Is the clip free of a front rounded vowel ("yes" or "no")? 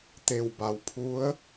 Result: yes